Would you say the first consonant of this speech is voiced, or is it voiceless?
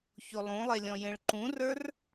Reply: voiceless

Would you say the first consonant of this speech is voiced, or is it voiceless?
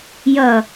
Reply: voiced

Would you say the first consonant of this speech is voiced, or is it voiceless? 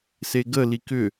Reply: voiceless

